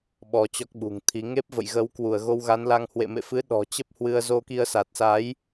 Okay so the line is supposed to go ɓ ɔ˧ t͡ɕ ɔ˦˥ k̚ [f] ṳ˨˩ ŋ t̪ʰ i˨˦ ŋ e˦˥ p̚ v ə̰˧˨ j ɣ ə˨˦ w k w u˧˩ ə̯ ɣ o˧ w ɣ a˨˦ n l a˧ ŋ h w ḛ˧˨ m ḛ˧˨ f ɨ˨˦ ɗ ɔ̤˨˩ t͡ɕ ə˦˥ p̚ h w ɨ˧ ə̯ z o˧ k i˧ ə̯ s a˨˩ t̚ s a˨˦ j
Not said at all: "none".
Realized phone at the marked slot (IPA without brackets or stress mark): ɓ